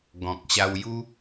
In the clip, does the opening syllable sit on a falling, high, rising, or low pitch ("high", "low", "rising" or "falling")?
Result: low